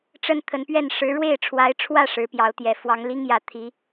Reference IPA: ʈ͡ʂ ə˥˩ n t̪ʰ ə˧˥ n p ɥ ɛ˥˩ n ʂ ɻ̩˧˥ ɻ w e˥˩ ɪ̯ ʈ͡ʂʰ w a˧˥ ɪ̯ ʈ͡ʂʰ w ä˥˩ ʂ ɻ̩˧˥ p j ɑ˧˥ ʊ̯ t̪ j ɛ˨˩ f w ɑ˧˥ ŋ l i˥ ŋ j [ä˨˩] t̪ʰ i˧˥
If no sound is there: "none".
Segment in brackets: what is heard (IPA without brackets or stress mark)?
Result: ä˨˩